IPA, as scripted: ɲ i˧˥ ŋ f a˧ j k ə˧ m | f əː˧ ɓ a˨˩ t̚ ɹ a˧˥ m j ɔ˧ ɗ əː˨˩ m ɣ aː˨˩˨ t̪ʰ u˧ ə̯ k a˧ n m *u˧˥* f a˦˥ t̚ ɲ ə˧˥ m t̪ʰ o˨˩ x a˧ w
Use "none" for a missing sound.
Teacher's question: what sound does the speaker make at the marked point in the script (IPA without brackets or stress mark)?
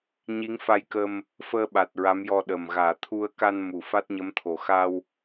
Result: u˨˩˨